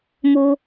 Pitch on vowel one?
high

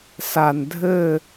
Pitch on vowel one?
low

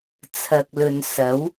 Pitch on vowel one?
low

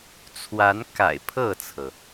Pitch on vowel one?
rising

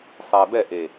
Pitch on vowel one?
low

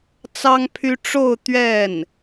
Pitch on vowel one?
high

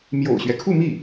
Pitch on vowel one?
low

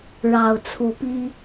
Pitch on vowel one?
low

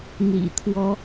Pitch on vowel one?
low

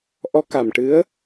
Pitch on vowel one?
rising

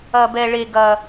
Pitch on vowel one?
high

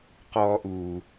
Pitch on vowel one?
high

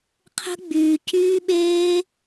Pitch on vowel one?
high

